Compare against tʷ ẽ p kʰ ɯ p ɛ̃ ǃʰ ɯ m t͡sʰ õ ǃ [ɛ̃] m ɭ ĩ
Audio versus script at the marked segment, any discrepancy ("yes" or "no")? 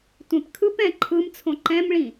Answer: no